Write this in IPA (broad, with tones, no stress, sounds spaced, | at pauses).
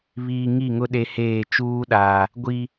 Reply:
β iː˨ ŋ i˦˨ ŋ ʊ˦ ɗ e˦ h eː˦˨ t͡ʃ uː˦ ɗ aː˨ | ɡʷ i˨